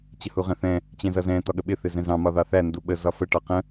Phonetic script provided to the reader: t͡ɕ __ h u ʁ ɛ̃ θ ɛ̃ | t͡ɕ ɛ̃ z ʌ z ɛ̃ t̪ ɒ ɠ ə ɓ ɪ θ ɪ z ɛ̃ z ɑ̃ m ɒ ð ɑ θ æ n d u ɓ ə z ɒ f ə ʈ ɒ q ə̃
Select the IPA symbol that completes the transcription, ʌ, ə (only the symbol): ə